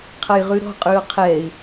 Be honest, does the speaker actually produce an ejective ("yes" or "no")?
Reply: yes